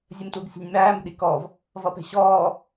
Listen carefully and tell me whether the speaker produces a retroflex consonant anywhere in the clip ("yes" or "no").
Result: no